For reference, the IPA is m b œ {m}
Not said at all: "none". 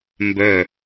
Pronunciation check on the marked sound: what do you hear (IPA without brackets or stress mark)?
none